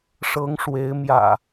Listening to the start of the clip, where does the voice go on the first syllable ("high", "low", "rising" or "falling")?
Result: rising